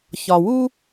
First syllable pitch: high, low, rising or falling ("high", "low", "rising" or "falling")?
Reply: low